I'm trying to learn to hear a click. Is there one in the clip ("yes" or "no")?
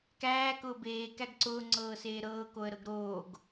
yes